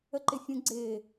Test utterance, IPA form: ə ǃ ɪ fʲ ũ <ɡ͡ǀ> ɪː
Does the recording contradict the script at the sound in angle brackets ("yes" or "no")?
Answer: no